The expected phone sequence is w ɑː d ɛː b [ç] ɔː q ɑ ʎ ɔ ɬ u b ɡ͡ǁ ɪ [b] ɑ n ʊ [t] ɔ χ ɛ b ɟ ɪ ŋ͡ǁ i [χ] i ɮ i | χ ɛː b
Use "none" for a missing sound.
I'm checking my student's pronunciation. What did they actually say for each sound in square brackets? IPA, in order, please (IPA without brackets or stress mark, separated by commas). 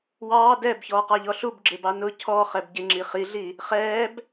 ç, b, cʰ, χ